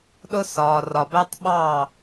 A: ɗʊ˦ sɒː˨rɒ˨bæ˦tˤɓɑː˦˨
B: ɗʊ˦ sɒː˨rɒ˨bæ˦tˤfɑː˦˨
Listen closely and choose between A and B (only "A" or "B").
A